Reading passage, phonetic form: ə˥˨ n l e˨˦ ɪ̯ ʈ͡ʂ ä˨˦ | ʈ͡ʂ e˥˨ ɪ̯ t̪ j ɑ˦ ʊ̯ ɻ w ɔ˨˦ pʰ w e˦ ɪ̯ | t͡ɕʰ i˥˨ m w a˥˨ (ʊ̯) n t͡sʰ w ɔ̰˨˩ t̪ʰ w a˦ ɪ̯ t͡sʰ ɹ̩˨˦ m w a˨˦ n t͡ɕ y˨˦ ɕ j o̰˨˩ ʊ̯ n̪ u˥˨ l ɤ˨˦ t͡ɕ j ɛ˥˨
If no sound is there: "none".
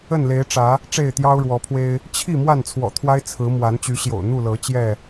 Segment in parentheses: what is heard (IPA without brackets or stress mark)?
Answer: none